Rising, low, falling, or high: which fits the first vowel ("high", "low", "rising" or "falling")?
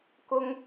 high